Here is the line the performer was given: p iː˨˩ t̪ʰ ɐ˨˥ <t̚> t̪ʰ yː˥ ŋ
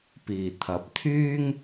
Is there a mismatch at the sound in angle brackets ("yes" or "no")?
yes